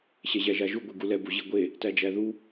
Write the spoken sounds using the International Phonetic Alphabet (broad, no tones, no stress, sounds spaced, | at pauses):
ɕ ɛ ʑ æ ʒ a ʒ u ɡʷ i ɡ u l ɛ b u ʑ i ɡʷ e | t æ d͡ʒ æ ð u